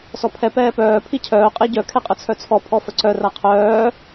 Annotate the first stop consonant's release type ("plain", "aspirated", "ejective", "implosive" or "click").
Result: aspirated